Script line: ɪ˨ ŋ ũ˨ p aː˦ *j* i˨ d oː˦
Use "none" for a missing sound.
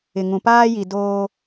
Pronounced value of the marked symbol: j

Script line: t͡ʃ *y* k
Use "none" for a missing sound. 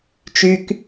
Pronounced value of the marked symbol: y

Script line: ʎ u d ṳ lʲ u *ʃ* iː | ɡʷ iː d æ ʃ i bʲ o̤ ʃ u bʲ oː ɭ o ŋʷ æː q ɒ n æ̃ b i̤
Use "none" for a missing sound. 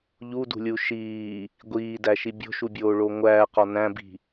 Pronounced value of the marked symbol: ʃ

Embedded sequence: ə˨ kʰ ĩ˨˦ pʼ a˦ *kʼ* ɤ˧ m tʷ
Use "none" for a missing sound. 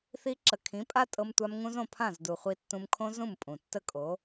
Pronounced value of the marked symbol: tʼ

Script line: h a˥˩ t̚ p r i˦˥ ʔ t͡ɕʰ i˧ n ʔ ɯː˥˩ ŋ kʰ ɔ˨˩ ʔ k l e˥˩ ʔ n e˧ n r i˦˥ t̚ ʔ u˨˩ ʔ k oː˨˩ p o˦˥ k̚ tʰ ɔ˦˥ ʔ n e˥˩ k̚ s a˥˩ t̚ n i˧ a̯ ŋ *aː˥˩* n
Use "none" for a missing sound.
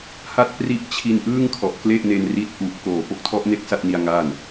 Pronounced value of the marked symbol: aː˥˩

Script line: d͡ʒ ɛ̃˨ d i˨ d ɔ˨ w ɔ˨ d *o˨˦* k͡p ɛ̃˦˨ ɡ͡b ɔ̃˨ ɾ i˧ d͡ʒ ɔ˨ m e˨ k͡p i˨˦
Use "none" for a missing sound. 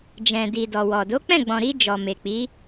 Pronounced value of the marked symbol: o˨˦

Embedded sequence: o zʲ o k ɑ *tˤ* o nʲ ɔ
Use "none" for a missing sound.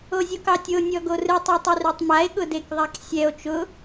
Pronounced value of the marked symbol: tʲ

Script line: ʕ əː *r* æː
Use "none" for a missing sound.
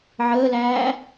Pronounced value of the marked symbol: l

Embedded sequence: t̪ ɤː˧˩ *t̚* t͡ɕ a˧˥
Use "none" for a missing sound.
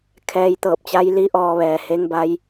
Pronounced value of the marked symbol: p̚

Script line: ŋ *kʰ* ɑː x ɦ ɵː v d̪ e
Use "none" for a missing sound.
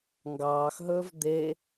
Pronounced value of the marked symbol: ɡ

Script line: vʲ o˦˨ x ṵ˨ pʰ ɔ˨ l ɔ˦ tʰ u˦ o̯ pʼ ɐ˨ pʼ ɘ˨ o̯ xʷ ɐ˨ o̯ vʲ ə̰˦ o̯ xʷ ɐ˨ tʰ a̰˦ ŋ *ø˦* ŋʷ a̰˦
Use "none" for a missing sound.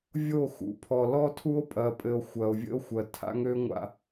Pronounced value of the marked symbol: ø˦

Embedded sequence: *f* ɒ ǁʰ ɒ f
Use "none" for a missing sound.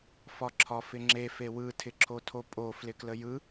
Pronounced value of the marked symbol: f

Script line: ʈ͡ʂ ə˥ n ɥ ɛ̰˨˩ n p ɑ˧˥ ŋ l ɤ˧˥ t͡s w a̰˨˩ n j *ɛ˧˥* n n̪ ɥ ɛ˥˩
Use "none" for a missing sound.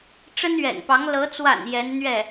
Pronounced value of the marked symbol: ɛ˧˥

